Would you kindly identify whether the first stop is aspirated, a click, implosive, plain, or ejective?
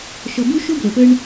plain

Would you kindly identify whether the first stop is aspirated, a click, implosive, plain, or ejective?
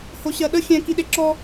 implosive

